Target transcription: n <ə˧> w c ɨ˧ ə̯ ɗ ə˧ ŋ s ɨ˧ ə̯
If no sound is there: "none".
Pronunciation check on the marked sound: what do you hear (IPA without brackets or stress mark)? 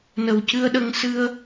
ə˨˩